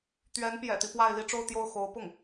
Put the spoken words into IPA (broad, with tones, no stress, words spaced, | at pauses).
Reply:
t̪ɥɛ˧˥npjɛ̰˨˩t̪i˦ pwa˥˧ɪ̯ li˥˧ʈ͡ʂo˥˧ʊ̯ t̪jo˥˩ʊ̯xo˧˥ʊ̯pʊ˥˩ŋ